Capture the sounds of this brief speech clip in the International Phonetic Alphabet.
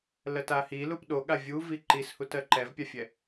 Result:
lɜtahi lupɗo ɠavʲuvi ǃishut ɜǃɛvpʲafʲɛ

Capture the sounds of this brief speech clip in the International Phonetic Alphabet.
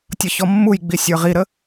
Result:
tʲʌçɔmːujɡ͡bi sʲə˞ʁiɾə

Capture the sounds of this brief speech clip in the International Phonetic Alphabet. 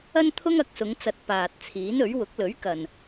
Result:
ɐ˥nt̪ʰʊ˥ŋɐ˨˥k̚sʊ˨˧ŋ t͡sɐ˨t̚ paː˨t̚t͡sʰiː˨˥nɵ˨˥ɥ wʊ˨˥k̚lɵ˨˥ɥkɐ˨n

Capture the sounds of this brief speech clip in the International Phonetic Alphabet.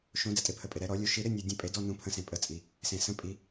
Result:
ʃõ˨˩˦ dɛ˩tʼɪ˨˩˦pʰə˩pʼɪ˩ ɾɛ˨˩˦ɾɔ˨˩˦lʲu˨˦ ʃi˨˦ ɾɪ˧˥˧nʲu˩dʲə̃˨˩˦ pʼe˨˩˦dɔ˧˥˧ nũ˨˩˦pʰə̃˨˩˦sẽ˩pʼə˨˩˦ t͡sʼi˩ | sẽ˩sə̃˨˦ pʼi˨˩˦

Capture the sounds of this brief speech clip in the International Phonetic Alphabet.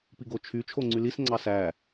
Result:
piɡot͡ʃʰy t͡ʃʰoŋ͡ǀylis ŋ͡ǀɑsæ

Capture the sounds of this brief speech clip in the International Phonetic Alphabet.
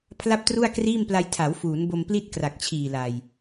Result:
pʰla˥˩p̚tru˥˩a̯kriː˥˩mpla˧j tʰa˩˦wfuː˩˦nbo˧m pli˥˩t̚kra˨˩k̚t͡ɕʰiː˨˩la˨˩j

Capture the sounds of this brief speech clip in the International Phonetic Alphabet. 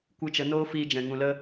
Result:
kʷɨ˧t͡ʃə˨˦noː˦ fiː˧d͡ʒɛ̃˨ ŋũ˨lə˧

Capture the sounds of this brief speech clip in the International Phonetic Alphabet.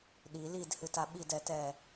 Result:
ɗi lidhɨta ɓidɛtɛ

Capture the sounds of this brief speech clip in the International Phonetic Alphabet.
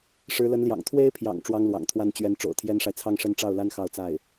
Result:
ʂɻ̩˧˥lə˧˥nljɑ̰˨˩ŋ t̪ʰwe˥ɪ̯pʰjɑ̰˨˩ŋ ʈ͡ʂwɑ˥ŋlwɑ̰˨˩ŋt̪ʰwa˥n t͡ɕɥɛ˧˥n ʈ͡ʂo̰˨˩ʊ̯t̪ʰjɛ˥nʂa˨ɪ̯ t͡sʰɑ˥˧ŋʂə˥˧nʈ͡ʂɑ˥˩ʊ̯la˥n xɑ˥˧ʊ̯t͡sa˥˩ɪ̯

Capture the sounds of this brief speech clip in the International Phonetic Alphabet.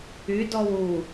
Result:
ydɔw u

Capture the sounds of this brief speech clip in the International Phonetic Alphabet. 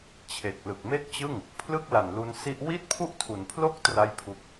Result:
t͡ɕʰe˨˩k̚lɯ˨˩k̚ me˥˩k̚t͡ɕɯ˥˩ŋ | pʰlɯ˥˩k̚la˨˩nlu˧nsi˦˥ʔ wi˥˩t̚pʰu˥˩ʔtʰu˩˦npʰlo˥˩k̚ tra˥˩jpʰu˥˩k̚

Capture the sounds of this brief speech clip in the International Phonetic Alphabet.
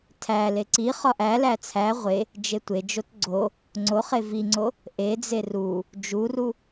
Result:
tʰæ leǀiχɒ ʔælæ t͡sʰæ ʁʷe | d͡ʒetʷed͡ʒot ɡ͡ǀo | ŋ͡ǀoχe viŋ͡ǀo | ʔed͡ze ru | d͡ʒuru

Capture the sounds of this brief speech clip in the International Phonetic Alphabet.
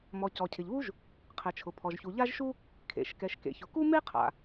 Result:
mɔ˩ cɔ˩cʰɪ˩ʎβu˥ʒ | qʰɛ˩t͡ʃʰʊ˩pʰɔ˩ʒçu˩ ʎa˥ʒʃu˥ | kʰḛ˩ʃkɛ˩ʃkḛ˩ çʊ˩ku˥me˥qʰa̰˩

